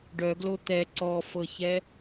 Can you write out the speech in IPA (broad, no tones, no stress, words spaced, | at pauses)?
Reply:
ɖœɡlo t̪ɛ ǀɔfɤçɛ